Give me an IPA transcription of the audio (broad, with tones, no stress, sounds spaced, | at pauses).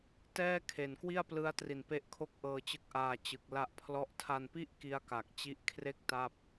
t ɛː˥˩ kʰ e˨˩ n k w i˥˩ a̯ p l ɯ˦˥ a̯ t r i˨˩ n p e˦˥ ʔ kʰ o˥˩ k̚ ʔ ɤː˧ t͡ɕ ɯ˦˥ k̚ ʔ aː˧ t͡ɕ ɯ˨˩ k̚ l a˦˥ ʔ pʰ l ɔ˦˥ ʔ tʰ a˧ n p i˥˩ ʔ k i˦˥ a̯ k a˨˩ k̚ t͡ɕ i˦˥ ʔ kʰ r e˥˩ k̚ t a˥˩ p̚